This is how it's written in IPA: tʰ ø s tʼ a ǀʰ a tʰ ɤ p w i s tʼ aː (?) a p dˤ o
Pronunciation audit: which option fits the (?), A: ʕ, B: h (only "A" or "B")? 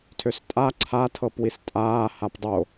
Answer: B